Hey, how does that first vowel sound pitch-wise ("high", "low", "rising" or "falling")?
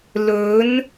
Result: rising